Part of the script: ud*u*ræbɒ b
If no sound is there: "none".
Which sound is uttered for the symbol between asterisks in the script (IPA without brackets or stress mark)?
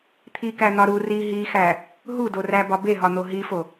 o